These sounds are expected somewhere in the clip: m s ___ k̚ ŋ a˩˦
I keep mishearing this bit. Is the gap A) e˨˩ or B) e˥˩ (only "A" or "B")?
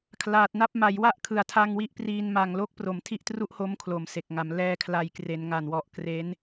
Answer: A